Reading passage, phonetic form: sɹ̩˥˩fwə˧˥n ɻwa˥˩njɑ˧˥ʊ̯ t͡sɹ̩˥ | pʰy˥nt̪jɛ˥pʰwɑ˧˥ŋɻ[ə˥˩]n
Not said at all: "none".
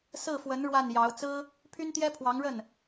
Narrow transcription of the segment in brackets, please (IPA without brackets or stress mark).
ə˥˩